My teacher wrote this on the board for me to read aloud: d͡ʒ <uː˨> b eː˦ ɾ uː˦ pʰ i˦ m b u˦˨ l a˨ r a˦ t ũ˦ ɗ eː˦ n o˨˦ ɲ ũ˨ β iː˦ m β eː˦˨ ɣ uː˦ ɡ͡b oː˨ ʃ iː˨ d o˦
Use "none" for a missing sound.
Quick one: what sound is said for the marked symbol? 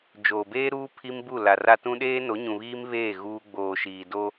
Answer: oː˨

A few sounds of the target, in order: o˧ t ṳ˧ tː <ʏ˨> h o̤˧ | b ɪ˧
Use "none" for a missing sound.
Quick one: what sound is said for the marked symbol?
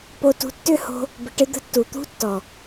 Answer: ʏ˦˨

